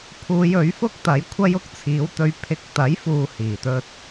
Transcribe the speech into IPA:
pʰ uː˨˧ j ɵ˨˥ ɥ f ʊ˥ k̚ t̪ ɐ˨˥ j kʷʰ ɐ˥ j ʊ˥ k̚ t͡sʰ iː˨˥ w t̪ ɵ˧ ɥ pʰ ɪ˧ k̚ t̪ ɐ˨˥ j f uː˨ h iː˨˩ t̪ ɵ˧ t̚

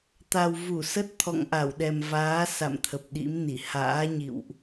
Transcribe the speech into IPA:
t̪ a˨˩ w v u˧˩ s ə˦˥ t̚ t̪ʰ ɔ̰˧˨ ŋ ʔ a˧˩ w ɗ ɛ˨˩ m v aː˨˦ s a̰˧˨ m t̪ʰ ə˨˩ p̚ ɗ ḭ˧˥ m n i˧˩ h a̰ː˧˥ ɲ ḭ˧˨ w ʔ

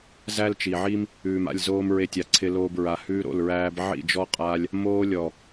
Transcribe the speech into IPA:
z æ˦ l t͡ʃ i˨ ʕ i˦ m | ʉː˨ m a̰˦˨ lʲ z oː˧ m ɹ e˧ tʲ a˨ ǀʰ ɪ˧ l oː˧ b ɹ a˨ h ʉː˧ ɾ o̰˦˨ l ɹ æː˧ b ʕ ḭ˦˨ d͡ʒ ɔ˦ qʼ a˦ lʲ | m oː˧ lʲ ɔ˨

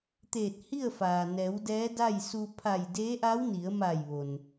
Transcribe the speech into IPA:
t̪ eː˧˩ t̚ h i˥˨ ə̯ f aː˩ n ɛː˩˧ w d ɛː˧˥ d a˥˨ j s u˧ pʰ a˧˩ j d eː˧˥ ʔ a˧˥ w n i˩˧ ə̯ m a˧˩ j ʋ o˩ n

